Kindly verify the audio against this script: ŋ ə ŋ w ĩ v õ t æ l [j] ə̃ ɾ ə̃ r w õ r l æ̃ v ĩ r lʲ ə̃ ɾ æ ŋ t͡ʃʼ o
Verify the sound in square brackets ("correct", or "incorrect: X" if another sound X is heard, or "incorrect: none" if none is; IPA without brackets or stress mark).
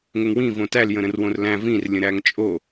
correct